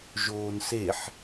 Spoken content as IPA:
ʒ oː n s e ħ

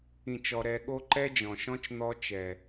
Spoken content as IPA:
ĩ˦˨ t͡ʃ ɔ˧ ɾ ɛ˧ ɠ o˦ ǃ ɛ˦ d͡ʒ ɔ̃˨ ʃ ɔ̃˦ t͡ʃ n̪ ɔ˦ t͡ʃ ɛ˨

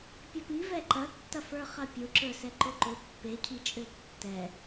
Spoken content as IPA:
pʲ ɐ p i v ɛ ǃ ɐ tː ɐ f ə˞ χ ɐ pʲ ʊ ǁ ə˞ s ɛ ǃ ʊ ǃ ʊ pː e cʰ i t͡ʃʼ ø tː ɛ

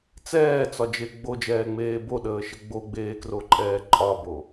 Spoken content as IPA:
t͡s ɛː t͡s ɒ d͡ʒ e ɡ͡b o d͡ʒ ɛː ŋ͡m eː b o ɗ əː ʃ ə ɡ͡b o ɡ͡b eː k r o ǃʼ ɛː ǃʼ ɒ b o

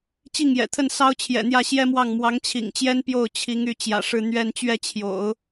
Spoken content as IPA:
t͡ɕ i˥˩ ŋ j ɛ̰˨˩ t̪ʰ ə˥˩ n s ɑ˥ ʊ̯ t͡ɕʰ j ɛ̰˨˩ n̪ j ä˥˩ ɕ j ɛ˥ m w ɑ˥˩ ŋ m w ɑ˧˥ ŋ t͡ɕʰ ḭ˨˩ ŋ t͡ɕ j ɛ˥ n p j o˥˩ ʊ̯ t͡ɕʰ i˧˥ ŋ y˧˥ t͡ɕ j ä̰˨˩ ʂ ɻ̩˥˧ n̪ ɥ ɛ˥˧ n t͡ɕ ɥ ɛ˥˩ t͡ɕʰ j o̰˨˩˦ ʊ̯

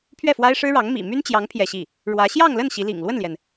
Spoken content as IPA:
pʰ ɥ ɛ˥˩ f w a˥ ɪ̯ ʂ ɻ̩˥ ɻ ɑ˧˥ ŋ m ḭ˨˩ m y˥ n t͡ɕ j ɑ˧˥ ŋ pʰ j ɛ˥˧ ɕ i˥˩ | ɻ w ä˧˥ ɕ j ɑ˥˧ ŋ l ə˥˩ n ɕ i˧˥ l ḭ˨˩ ŋ l w ə˥˩ n l j ɛ˩ n

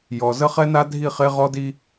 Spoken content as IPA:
j ɔ˨ z ə˦ χ ɛ˦ n a˦ dʱ i˦˨ χ e˦ ʁ ɔ˦ d i˦

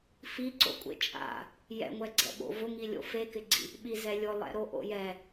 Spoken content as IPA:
f i ǀ o̰ kʷʼ ḛ t͡ʃʼ a̰ | j ɛ̰ ŋʷ ɛ ɡ͡ǀ ɛ̰ ɓ o̰ v ʊ ŋ i lʲ o̰ f e k ɪ ɡ͡ǀ ḭ | ɓ i z ɛ lʲ ʊ lˠ ɛ̰ ɾ o ʔ o̰ j ɛ

